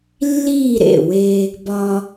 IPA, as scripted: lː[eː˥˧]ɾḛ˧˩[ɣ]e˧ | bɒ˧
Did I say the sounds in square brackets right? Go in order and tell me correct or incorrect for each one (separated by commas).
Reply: incorrect, incorrect